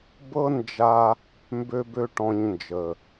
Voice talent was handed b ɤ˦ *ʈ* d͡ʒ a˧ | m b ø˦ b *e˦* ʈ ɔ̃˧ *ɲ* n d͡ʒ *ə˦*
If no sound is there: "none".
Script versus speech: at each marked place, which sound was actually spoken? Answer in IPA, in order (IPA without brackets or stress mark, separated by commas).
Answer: n, ø˦, ɲ, ə˨